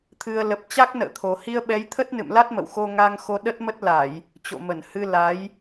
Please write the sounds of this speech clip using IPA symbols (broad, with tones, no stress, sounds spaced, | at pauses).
t̪ʰ ɨ˨˩ ə̯ l ə˨˩ p̚ t͡ɕ a˦˥ k̚ n ə̰ː˧˨ t̪ʰ o˨˩ h i˧ ə̯ ɓ ɛ˨˦ j t̪ʰ ə˦˥ t̚ n ɨ̰˧˨ m l a˦˥ t̚ m ə̰˧˨ w x o˧ ŋ a˧ ŋ x o˧ ɗ ə˦˥ t̚ m ə˦˥ t̚ l a˧˩˨ j | t͡ɕ o̰˧˨ m ə˧˩ n h ɨ˧ l a˨˦ j